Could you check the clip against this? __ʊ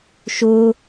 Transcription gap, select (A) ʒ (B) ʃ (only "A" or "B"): B